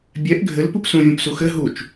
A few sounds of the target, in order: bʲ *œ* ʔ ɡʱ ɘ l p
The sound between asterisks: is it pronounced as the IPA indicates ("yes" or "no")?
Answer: no